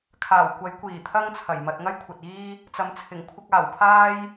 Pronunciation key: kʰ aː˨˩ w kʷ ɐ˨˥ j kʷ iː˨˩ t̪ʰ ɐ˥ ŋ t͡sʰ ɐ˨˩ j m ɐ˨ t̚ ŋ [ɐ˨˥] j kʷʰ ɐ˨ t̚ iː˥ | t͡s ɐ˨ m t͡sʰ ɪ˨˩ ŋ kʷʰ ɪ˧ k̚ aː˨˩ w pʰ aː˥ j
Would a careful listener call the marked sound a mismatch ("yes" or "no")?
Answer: yes